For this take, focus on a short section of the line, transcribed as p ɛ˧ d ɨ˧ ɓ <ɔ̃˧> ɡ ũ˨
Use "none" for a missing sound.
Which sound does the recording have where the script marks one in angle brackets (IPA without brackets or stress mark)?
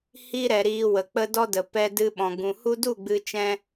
ɔ̃˨